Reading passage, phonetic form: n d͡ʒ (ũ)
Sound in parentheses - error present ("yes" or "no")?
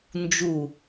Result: yes